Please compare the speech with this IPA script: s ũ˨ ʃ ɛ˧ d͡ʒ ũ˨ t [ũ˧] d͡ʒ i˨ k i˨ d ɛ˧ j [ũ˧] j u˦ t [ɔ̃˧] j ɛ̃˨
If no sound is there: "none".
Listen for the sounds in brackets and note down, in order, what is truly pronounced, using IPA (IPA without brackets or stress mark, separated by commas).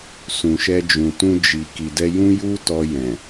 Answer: ũ˧, ũ˦, ɔ˧